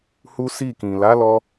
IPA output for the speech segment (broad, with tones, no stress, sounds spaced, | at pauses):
h u˦ s i˦˨ k ĩ˨ l a˨˦ l ɔ˧